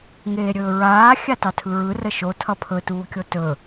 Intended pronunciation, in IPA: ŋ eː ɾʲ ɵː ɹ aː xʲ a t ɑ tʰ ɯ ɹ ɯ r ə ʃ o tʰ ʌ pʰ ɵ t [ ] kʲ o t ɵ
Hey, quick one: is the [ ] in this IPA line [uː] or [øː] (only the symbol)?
uː